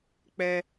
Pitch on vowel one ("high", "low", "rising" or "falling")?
high